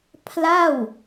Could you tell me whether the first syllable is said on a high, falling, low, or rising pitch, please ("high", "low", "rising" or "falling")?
falling